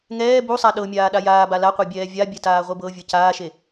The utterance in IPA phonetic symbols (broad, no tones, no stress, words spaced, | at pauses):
ŋɛː busˤa ɗɤ mʲaːɗajaːba laqʷæ bʲɛːvʲabʲɛ taːʁʷibɤvʲɤ caːʃe